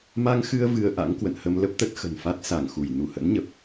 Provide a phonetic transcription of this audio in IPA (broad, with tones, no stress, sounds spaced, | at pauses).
m a˧ ŋ x ɨ˧ ə̯ v ɨ˧ ə̯ ʔ a̰˧˥ ŋ k w ə̰˧˨ n h ə˧ m l ə˦˥ p̚ t̪ ə˦˥ t̚ x ə̤˨˩ n f a˦˥ t̚ s a˧˩ ŋ x u˧˩ j n u˧˩ h ə̰˧˥ n ɲ ə˨˩ p̚